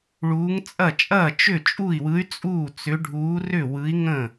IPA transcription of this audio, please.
ɭ uː˧˥ ŋ t͡sʼ ɐ˥˨ t͡ʃʼ ɐː˥˨ t͡ʃ ʏ˥˨ t͡ʃʼ u˥˨ i̯ w ɯ˧˥ y̯ t͡sʼ uː˥˨ t͡s ʏ˧˥ ɖʱ uː˧˥ r ʏ˥˨ w ɯ˧˥ i̯ ŋ ə̃˥˨

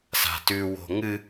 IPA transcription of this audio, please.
s a̤ t ʉ w o̤ ŋ ɨ

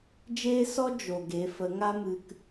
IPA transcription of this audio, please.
d͡ʒ eː˦ s ɔ˦ d͡ʒ o˨ ɡ e˨˦ f ə˨˦ ŋ a˦ m ɨ˧ k

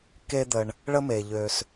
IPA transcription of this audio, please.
k e˦ d̪ ə˨ ɳ | ɭ ə˦ m e˩ ʎ ø˨ s

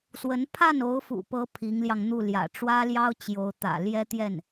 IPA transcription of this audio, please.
s w ə˧˥ n pʰ a˥˩ n o˧˥ ʊ̯ f ṵ˨˩ p ɤ˧˥ pʰ i˧˥ ŋ l j ɑ˧ ŋ n̪ u˥˩ l j ä̰˨˩ ʈ͡ʂ w ä˥ l j ɑ˥ ʊ̯ t͡ɕ j o˧˥ ʊ̯ t̪ ä̰˨˩ l j ɛ˥ t̪ j ɛ˥˩ n

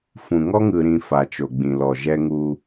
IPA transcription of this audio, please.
f ũ˨ ŋ ɔ˦ ŋ ɯ˨ ɾ ĩ˨ f a˨ t͡ʃ o˨ ɡ͡b ĩ˨ l ɔ˨ ʒ ɛ˦ ŋ u˦

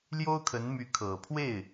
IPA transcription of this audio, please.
l j o˥ ʊ̯ kʰ ə˧˥ n m y˧˥ kʰ ɤ˨˩ pʰ w e˥˩ ɪ̯

